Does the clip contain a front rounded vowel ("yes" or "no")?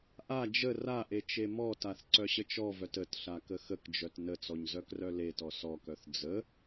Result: yes